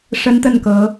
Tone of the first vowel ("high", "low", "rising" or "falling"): high